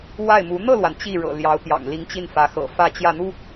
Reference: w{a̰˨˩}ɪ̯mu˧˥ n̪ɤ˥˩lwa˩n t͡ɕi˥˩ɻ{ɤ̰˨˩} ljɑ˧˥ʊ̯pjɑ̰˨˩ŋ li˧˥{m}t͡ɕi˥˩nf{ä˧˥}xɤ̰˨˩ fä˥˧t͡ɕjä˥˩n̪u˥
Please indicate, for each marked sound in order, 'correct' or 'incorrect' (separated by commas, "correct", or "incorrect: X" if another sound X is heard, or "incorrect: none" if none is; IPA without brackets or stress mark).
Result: incorrect: a˥˩, correct, incorrect: ŋ, correct